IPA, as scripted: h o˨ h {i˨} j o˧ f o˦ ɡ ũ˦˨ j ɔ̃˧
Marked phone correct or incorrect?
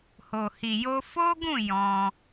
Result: correct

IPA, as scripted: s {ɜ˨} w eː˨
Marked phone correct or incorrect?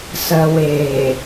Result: correct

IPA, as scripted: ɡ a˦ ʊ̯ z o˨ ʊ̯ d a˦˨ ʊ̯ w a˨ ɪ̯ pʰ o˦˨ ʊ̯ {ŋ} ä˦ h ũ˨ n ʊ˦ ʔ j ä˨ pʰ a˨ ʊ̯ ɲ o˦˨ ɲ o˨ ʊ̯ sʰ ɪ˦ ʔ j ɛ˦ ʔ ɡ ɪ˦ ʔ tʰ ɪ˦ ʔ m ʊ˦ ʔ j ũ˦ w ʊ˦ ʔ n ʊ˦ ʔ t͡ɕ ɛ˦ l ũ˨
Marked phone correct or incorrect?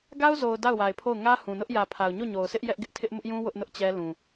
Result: correct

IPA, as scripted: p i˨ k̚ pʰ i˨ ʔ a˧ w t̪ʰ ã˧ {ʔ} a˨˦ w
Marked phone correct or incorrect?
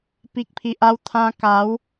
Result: incorrect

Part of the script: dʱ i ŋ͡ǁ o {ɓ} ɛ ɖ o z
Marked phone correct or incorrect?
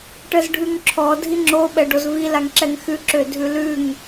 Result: correct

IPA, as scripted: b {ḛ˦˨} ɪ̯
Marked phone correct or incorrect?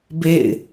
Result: correct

